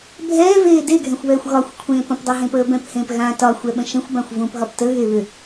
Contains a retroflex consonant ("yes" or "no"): no